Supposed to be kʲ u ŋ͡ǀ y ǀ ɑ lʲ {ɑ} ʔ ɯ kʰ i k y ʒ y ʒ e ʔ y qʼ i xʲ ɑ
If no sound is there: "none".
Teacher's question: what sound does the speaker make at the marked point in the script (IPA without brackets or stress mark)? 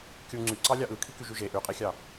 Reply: ɑ